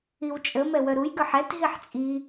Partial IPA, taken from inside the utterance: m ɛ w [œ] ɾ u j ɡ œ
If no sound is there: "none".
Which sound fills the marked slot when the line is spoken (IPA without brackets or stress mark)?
œ